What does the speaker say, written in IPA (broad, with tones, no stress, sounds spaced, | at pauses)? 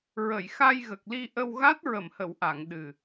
ɹ ə˨˩˨ j x a˧ j ɣ ə˨˩ k̚ l i˧ ʔ ə˧ w ɣ a˦˥ t̚ ɹ ə˨˩˨ m h ə˨˩˨ w ʔ a˨˩˨ ŋ ɗ ɨ˨˩